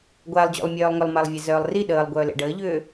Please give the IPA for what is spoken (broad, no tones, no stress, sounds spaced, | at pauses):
ɡʷ a lˠ d͡ʑ o̰ lˠ mʲ œː lˠ ŋ ʏ lˠ m a lˠ vʲ e z œː lˠ r i ɗ əː lˠ ɡʷ œː l ḛ ɖ əː ʎ ʏː